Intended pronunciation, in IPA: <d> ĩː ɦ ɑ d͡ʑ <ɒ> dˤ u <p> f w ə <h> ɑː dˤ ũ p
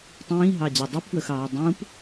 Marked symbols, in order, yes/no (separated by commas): no, no, yes, no